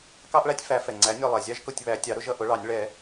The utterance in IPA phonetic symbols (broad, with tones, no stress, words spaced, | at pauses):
kɑ˥ʔɭæ˥tʲfæ˨˥ fɛ˩ŋ͡ǀæ˨˥nʲɔ˦˨ lˠɛ˩zʲɑ˥ʒkʊ˦˨tʲ βæ˨˥tʲɑ˨˥ ɾʊ˥ʒʌ˦˨ ʔʊ˨˥ɭɑ˨˩˦nʲ ɭɛ˨˩˦